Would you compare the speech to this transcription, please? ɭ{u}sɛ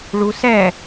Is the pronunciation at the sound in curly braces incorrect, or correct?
correct